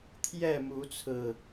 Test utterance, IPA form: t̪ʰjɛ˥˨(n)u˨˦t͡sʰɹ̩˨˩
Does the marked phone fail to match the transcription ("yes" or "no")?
yes